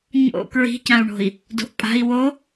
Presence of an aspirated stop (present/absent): absent